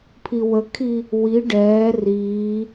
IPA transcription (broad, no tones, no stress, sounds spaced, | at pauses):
pʰ i w ə kʰ i | w i ɖ ɛː r iː